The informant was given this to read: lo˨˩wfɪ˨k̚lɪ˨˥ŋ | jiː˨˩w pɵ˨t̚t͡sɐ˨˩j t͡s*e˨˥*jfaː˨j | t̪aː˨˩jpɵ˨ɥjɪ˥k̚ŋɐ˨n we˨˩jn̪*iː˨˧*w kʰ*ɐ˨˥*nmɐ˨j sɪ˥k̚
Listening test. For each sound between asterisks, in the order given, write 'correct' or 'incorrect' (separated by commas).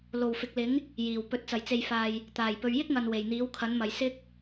incorrect, incorrect, correct